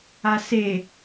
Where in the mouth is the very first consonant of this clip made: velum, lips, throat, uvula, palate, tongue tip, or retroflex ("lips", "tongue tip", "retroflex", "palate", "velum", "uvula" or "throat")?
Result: tongue tip